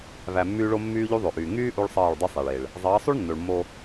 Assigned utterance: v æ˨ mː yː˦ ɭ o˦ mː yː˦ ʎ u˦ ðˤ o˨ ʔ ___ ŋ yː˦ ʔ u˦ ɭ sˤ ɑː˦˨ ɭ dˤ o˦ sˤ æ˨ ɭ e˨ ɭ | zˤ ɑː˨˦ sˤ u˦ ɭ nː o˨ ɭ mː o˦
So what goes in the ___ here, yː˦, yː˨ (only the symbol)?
yː˨